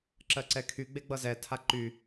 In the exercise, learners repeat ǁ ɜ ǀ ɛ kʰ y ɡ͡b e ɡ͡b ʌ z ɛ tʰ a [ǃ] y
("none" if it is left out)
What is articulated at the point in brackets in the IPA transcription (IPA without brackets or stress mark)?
ǃ